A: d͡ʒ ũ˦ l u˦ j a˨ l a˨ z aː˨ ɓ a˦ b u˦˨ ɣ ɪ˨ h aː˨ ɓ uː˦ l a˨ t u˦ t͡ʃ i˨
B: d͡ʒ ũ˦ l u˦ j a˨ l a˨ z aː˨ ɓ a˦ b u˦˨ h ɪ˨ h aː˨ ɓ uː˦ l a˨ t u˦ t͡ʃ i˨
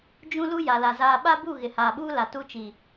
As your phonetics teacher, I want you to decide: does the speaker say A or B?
A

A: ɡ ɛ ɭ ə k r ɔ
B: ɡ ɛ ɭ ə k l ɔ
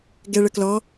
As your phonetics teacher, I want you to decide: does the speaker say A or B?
B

